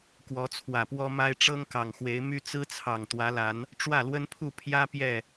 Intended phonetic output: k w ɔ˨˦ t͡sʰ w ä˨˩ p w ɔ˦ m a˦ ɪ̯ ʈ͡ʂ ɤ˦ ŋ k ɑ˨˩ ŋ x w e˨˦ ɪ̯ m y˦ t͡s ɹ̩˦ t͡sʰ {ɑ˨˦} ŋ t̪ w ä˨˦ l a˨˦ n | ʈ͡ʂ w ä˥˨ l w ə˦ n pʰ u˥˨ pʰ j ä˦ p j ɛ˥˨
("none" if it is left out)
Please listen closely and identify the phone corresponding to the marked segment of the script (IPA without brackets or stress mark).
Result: ɑ˨˩